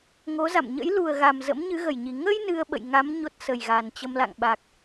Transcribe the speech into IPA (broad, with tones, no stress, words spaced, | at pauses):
ŋo˨˦za̰˧˨m ɲə̰˧˥j lu˨˩ə̯ɣa˨˩m zə̰˧˥mɲɨ˨˦ɣə˧˩jɲi˨˩ ŋə˧j nɨ˧ə̯ɓə̰˧˨jŋa˨˦m ɲo˦˥t̚sə˨˩jɣa˨˩nt͡ɕə˧m la̰˧˨ŋɓa˨˩k̚